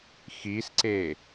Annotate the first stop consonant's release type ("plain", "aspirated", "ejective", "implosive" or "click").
click